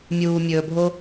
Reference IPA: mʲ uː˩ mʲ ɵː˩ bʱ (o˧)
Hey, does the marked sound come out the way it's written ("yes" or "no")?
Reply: yes